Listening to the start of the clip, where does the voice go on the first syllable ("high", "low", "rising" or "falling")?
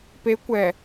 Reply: rising